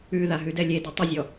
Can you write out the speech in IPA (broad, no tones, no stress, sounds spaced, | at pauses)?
ʉ ð a ɦ ʉ d ɛ lʲ e d ɛ tˤ ʏ zʲ ɔ